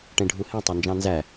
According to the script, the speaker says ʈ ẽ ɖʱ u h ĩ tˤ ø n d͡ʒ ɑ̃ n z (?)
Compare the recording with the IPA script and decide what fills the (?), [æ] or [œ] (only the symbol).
æ